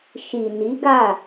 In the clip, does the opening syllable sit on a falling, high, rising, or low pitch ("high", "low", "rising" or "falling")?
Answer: low